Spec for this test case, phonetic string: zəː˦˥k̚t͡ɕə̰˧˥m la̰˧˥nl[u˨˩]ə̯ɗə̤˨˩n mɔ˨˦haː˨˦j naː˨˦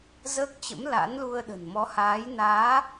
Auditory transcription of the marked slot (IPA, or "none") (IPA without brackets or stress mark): u˧